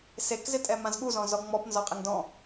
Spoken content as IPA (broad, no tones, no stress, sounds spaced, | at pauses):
s e k z ɪ tʼ ɛ m ã z ɠ u z ɔ̃ z ɔ ŋ͡m ɔ p n z ɔ qʼ ɪ ŋ d ɔ̃